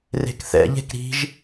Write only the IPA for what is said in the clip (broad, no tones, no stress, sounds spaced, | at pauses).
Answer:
r e̤ k θ ɛ̰ ʎ e̤ k ɾ i̤ ʒ